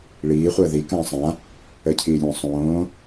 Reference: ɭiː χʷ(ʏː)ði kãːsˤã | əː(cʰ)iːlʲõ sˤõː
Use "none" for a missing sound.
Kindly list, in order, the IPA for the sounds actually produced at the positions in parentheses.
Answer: əː, cʰ

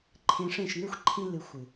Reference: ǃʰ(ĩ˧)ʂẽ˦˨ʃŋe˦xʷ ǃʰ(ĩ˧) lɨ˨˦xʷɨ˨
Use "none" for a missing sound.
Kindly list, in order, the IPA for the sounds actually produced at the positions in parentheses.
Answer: ẽ˧, ĩ˧

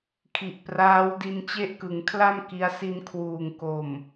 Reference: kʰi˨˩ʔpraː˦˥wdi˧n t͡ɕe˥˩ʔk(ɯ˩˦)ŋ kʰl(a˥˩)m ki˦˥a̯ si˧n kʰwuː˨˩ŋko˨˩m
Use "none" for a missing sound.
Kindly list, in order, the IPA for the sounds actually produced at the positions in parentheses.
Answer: ɯ˩˦, a˥˩

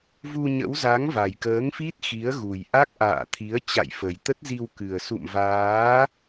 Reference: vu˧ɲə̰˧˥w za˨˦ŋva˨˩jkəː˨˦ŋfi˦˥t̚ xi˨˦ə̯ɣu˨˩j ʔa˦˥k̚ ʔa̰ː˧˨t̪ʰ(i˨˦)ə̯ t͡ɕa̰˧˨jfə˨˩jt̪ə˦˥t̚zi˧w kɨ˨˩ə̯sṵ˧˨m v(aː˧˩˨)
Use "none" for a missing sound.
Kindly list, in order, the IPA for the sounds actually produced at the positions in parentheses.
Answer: i˨˦, aː˨˦

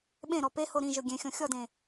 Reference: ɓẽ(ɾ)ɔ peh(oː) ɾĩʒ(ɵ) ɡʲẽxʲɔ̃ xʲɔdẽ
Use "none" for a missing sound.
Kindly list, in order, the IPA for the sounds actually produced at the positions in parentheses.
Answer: ɾ, o, ɵ

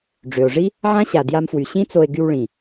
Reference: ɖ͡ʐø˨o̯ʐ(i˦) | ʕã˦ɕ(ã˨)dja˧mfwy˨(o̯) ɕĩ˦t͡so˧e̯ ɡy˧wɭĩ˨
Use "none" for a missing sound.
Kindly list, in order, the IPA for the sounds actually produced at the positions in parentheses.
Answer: i˦, a˨, none

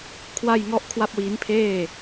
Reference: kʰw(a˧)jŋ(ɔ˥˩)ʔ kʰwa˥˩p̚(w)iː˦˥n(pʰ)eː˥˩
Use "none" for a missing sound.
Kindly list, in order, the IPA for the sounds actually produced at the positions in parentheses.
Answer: a˥˩, ɔ˥˩, w, pʰ

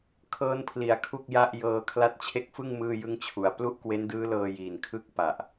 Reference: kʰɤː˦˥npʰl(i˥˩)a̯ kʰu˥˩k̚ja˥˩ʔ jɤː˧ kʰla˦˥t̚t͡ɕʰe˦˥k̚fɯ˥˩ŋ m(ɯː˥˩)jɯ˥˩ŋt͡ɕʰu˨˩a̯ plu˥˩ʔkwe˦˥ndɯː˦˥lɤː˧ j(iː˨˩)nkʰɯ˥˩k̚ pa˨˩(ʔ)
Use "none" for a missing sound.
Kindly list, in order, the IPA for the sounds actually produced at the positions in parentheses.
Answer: i˩˦, ɯː˥˩, iː˨˩, ʔ

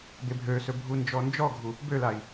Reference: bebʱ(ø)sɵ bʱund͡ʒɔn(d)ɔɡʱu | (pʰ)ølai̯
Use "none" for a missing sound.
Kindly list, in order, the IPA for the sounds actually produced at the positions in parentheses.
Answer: ø, d͡ʒ, b

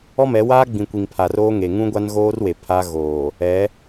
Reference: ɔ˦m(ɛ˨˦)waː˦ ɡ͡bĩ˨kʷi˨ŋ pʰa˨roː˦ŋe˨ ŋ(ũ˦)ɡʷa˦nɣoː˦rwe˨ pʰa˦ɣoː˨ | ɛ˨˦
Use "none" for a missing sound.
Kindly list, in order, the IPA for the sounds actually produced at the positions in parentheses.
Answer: ɛ˨˦, ũ˦

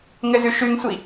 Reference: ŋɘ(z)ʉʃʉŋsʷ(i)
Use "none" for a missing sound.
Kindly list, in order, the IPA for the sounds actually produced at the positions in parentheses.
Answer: z, i

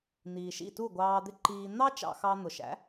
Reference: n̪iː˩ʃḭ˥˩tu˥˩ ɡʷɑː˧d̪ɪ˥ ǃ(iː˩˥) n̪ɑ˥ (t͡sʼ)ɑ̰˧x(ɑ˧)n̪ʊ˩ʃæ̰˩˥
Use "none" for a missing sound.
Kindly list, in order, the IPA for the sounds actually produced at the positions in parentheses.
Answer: iː˧, t͡ʃ, ɑ˧

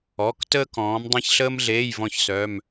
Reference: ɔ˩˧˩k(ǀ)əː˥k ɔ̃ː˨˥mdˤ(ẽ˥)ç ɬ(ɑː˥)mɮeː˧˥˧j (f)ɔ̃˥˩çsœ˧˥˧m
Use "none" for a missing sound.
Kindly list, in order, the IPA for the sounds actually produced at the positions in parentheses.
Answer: t, ẽ˥, əː˥, v

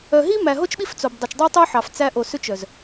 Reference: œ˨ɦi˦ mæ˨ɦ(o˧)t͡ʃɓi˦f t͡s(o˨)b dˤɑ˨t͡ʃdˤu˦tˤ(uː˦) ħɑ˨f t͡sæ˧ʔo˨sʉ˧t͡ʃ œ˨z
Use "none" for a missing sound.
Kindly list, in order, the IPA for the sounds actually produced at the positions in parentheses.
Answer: o˦, o˨, u˦

